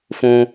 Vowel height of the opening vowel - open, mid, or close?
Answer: close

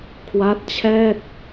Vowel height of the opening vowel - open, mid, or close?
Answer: open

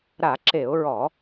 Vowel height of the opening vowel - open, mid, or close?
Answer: open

